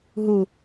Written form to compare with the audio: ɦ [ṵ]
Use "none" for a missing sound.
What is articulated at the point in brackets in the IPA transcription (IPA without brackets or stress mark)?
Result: u